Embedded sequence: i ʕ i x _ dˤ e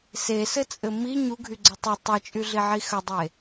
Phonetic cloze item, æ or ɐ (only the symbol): ɐ